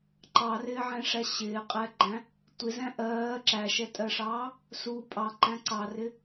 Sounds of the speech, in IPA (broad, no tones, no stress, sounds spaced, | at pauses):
ǃ ɑ r ɪː ʕ ɛ̃ ʂ æ ɕ ɪː qʼ ɛ ɡ͡ǃ æ̃ | tʷ ɪ z æ̃ ʔ ɜː ǁ æ ʃ ɛ tʼ ɜ ʂ ɑː | s u pʼ ɑ ǃ æ̃ ǀ ɑ r ɪ